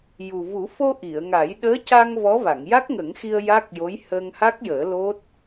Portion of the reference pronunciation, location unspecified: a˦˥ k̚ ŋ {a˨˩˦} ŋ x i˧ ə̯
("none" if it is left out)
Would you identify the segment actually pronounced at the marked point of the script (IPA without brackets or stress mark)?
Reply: ə˨˩˦